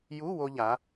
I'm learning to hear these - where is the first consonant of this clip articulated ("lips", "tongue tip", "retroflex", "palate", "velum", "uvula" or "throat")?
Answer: palate